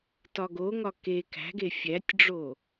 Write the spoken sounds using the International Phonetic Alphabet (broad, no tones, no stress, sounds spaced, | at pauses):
t ɒ ɡ o ŋ ɒ k e k æ̤ ɡ e fʲ æ tʲ ɖ͡ʐ o